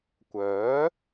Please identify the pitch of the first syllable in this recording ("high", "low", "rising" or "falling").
rising